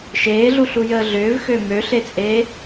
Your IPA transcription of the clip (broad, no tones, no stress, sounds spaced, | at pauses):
ʃ eː ɮ u ɬ u j əː ɮ ʏː v x ø m ø ɬ e t͡sʼ eː